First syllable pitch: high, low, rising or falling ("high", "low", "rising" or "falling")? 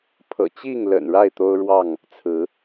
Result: low